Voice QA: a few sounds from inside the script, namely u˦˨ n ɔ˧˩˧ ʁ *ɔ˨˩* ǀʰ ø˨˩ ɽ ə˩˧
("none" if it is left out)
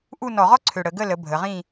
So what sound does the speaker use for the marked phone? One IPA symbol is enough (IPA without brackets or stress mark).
ɔ˥